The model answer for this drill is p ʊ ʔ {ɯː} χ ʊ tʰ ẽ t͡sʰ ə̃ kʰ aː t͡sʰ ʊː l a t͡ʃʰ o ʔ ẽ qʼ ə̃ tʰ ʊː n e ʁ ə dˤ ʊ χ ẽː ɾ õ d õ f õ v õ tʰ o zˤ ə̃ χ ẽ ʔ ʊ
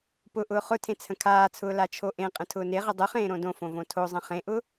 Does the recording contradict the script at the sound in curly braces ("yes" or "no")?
yes